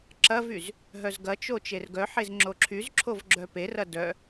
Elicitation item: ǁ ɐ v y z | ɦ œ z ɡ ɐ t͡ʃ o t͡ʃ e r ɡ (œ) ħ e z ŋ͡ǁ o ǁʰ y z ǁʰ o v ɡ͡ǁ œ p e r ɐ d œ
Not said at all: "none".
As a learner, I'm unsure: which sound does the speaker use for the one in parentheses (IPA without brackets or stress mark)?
œ